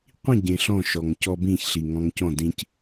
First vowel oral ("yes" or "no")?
no